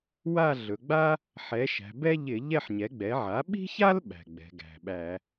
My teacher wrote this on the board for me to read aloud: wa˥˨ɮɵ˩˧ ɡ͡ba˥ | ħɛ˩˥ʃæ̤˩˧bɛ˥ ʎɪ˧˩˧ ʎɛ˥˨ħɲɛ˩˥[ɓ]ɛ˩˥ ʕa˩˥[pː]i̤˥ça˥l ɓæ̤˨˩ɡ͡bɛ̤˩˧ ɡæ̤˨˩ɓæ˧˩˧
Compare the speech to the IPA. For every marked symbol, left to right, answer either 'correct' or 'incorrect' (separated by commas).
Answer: incorrect, incorrect